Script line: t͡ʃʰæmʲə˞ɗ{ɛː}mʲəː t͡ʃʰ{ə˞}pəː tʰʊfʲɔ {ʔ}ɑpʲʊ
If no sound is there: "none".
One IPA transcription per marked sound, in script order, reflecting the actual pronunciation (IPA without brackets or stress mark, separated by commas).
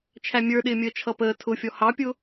ɪː, ʌ, h